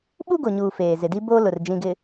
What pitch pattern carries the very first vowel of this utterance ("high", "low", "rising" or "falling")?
high